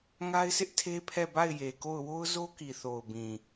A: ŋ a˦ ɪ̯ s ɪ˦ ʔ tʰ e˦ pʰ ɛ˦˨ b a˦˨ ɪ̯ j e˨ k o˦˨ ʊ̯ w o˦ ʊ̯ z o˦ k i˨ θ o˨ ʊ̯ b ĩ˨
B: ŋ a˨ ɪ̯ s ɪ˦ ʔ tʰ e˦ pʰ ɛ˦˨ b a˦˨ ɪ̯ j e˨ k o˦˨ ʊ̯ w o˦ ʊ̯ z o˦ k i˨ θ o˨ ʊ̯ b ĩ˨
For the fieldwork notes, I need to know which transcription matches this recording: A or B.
A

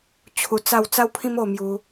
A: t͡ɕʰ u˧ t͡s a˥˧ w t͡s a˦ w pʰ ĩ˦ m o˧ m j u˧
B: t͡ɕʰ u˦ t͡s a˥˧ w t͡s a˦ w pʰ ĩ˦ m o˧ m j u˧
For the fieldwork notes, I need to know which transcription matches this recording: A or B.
A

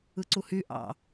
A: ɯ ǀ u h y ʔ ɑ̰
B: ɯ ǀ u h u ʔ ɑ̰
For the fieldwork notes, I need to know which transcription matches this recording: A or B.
A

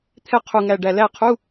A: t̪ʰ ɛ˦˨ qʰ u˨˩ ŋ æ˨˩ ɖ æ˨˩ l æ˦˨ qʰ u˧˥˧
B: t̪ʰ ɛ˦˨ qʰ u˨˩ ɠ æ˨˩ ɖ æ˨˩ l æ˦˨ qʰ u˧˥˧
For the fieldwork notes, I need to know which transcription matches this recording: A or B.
A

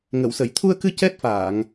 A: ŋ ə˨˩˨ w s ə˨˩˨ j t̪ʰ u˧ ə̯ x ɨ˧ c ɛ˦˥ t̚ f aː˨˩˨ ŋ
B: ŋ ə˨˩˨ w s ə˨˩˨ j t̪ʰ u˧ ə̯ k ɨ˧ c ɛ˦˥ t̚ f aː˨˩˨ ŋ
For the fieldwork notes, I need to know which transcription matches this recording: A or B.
B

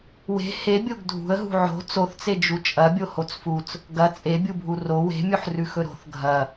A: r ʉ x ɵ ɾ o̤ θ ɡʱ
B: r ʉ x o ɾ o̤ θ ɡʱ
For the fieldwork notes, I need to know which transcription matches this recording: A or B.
A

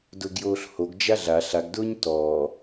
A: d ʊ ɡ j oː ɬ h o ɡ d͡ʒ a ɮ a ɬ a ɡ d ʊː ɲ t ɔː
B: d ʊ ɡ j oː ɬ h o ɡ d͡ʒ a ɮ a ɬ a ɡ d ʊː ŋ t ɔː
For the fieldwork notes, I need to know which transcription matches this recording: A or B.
A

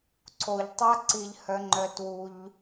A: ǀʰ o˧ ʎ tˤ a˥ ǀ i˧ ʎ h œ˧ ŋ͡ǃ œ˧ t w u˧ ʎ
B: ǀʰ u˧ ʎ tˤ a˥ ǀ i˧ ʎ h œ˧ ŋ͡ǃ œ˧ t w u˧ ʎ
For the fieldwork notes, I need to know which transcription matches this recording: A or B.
A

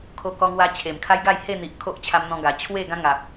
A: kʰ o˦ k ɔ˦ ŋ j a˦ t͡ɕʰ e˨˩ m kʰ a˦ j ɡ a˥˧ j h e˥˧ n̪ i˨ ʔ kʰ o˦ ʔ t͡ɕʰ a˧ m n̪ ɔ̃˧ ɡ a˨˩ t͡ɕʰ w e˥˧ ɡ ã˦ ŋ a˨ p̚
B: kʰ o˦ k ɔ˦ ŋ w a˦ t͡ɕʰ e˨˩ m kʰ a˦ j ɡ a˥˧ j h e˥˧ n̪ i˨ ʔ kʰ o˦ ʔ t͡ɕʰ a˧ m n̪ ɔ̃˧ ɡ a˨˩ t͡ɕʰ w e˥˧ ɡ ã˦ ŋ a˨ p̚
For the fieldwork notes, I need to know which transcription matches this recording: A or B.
B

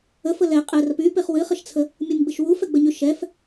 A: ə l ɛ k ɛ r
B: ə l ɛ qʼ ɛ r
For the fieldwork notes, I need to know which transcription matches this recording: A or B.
B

